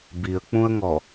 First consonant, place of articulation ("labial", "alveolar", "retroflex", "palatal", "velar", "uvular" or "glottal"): labial